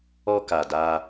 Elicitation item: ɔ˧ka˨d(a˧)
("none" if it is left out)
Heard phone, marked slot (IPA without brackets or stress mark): a˧